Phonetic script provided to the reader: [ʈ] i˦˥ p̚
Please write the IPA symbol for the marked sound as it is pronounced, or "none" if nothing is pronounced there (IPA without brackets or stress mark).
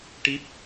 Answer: ʈ